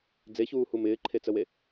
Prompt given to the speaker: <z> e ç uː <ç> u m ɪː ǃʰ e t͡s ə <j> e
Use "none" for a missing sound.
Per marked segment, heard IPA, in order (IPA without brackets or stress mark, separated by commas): d͡z, h, w